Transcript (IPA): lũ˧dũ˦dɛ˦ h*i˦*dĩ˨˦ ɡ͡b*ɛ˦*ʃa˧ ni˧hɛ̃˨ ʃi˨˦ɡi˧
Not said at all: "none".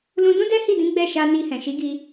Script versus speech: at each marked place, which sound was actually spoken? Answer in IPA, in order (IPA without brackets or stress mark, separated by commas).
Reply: i˦˨, ɛ˦˨